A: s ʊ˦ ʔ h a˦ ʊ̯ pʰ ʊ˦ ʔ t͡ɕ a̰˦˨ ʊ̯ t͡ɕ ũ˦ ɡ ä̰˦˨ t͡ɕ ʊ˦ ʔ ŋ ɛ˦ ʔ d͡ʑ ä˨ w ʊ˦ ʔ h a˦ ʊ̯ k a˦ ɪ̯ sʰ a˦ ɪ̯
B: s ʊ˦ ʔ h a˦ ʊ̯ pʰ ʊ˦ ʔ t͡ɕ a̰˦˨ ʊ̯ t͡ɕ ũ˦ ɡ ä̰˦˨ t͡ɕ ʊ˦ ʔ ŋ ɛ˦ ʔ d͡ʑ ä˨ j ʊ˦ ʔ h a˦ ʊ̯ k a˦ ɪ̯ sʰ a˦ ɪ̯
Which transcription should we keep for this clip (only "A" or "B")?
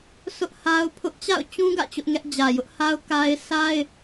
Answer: B